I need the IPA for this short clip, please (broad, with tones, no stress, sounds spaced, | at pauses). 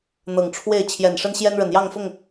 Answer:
n̪ ɤ˨˩ ŋ ʈ͡ʂʰ w e˥˨ ɪ̯ t͡ɕʰ j ɛ˨˩ n ʂ ə˦ n ɕ j ɛ˦ n ɻ ə˨˩ n j ɑ˥˨ ŋ f ʊ˥˨ ŋ